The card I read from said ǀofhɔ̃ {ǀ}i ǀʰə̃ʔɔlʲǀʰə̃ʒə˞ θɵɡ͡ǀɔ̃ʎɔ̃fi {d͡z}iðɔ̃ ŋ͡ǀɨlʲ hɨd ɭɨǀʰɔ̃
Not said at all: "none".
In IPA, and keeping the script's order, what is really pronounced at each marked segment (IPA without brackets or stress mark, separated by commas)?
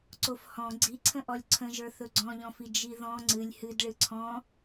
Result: ɡ͡ǀ, d͡ʒ